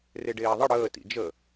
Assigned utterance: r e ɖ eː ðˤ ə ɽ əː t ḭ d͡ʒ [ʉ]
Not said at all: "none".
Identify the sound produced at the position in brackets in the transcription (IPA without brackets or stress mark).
ə